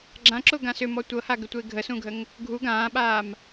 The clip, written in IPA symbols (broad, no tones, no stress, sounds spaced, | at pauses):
ɡ͡ǁ ã ǁ ʊ ɡ ã s ʏ m ɔ tʷ ɤ h a ɡ ʏ tʷ e ɡʱ ə s ũ ɡʱ ə ŋ | ɡʱ u ɡ ãː ɓ aː m